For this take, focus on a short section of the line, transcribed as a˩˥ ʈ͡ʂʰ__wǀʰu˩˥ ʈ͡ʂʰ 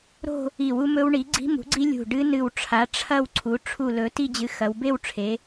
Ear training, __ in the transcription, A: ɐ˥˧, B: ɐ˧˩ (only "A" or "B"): A